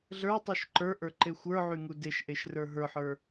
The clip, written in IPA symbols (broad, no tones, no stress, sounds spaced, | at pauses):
ɮ ə˞ tˤ u ʃ ǃ ə˞ ʔ ə˞ ǃ e xʷ ə˞ ʕ y ŋ u d e ʃ ʔ e ʃ r ə˞ ɦ ə˞ ħ ə˞